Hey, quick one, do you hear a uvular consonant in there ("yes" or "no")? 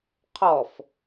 yes